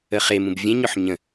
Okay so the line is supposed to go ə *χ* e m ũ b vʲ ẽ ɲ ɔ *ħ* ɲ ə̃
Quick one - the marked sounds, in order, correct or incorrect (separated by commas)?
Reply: correct, correct